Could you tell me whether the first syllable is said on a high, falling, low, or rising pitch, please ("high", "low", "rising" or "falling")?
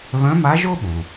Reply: rising